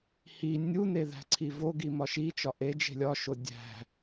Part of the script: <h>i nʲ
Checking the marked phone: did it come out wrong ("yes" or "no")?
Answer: no